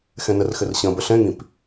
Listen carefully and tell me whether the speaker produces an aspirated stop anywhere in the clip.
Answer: no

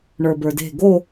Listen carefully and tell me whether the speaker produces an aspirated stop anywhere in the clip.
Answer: no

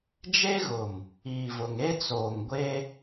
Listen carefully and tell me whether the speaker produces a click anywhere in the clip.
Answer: no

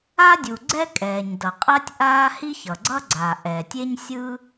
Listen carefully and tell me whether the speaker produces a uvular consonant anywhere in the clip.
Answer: yes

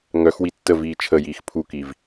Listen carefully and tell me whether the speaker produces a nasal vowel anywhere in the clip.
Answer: no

